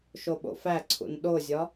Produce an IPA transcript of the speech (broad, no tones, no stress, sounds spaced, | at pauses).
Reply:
ʃ o ɓ o̰ f æ ǀʰ ṵ n ɗ o zʲ ɒ